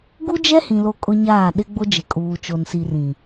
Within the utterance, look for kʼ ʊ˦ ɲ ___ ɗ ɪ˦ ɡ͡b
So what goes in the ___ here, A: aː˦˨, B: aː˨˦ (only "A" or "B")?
A